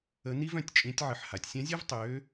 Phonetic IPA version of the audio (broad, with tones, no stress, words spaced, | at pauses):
ə˧˥ ni˥vœ̃˩˧tʲt͡ʃʼĩ˧˥tʲʕə˧ħ ha˩˧tʲsʲã˧˥zʲœ˥v tˤøː˧˥